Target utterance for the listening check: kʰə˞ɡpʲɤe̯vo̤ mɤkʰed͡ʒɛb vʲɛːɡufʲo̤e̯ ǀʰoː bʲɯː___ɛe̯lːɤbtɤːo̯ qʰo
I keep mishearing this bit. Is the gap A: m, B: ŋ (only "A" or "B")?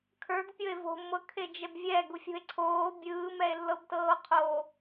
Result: A